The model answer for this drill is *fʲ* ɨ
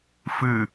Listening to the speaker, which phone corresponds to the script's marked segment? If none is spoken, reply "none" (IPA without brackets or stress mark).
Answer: f